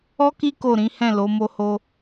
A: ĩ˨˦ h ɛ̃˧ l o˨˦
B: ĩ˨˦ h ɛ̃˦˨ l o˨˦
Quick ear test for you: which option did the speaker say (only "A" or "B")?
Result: B